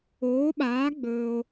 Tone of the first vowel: rising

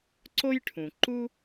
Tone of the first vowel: high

